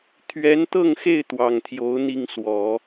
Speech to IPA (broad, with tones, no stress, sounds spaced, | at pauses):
t̪ʰ ɥ ɛ˧˥ n t̪ ɤ˥˧ ŋ x e˥˩ ɪ̯ t̪ w ɑ˨˩ ŋ t̪ʰ j o˧˥ ʊ̯ n̪ i˥˩ ŋ s w ɔ˨˩˦